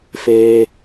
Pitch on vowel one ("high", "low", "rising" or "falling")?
low